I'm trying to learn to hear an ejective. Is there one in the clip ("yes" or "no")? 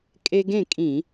yes